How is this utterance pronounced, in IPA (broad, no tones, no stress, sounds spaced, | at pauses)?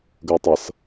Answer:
ɡ ə j tˤ ʌ s